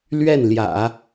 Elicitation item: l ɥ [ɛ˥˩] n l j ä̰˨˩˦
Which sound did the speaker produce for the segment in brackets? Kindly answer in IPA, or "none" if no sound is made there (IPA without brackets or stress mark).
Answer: ɛ˥˩